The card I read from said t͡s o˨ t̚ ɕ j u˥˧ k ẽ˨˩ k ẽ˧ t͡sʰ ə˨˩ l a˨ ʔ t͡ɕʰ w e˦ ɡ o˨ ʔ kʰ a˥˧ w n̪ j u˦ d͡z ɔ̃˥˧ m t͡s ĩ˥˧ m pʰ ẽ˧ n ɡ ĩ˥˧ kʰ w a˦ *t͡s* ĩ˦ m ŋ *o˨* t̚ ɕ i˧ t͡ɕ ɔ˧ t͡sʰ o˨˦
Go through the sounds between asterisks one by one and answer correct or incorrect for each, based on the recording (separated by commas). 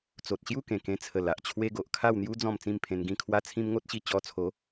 incorrect, incorrect